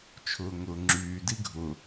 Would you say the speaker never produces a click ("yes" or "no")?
no